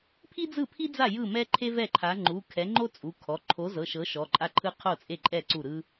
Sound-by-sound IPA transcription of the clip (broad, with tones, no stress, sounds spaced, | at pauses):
pʰ i˥ d͡z ɯ˥˩ pʰ i˥ d͡z a˥˩ j ɯ˥˩ m ɛ˥ ǃʰ e˥ v ɛ˥˩ ǃʰ a˨˥ ŋ͡ǃ u˩˧˩ kʰ ɛ˨˥ ŋ͡ǃ o˥ t͡sʼ u˩˧˩ kʰ ɔ˩˧˩ ǃʰ o˨˥ z ɤ˩˧˩ ʃ ɤ˨˥ ʃ ɔ˩˧˩ ǃʼ a˥ ǃʰ ɯ˥ qʰ o˥˩ t͡sʼ e˥˩ ǃʼ ɛ˥˩ ǀ u˥˩ ɾ ɯ˥